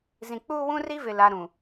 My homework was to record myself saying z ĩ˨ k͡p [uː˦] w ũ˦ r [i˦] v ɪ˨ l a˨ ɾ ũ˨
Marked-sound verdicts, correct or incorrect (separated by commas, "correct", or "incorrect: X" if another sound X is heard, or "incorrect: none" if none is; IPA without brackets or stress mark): correct, correct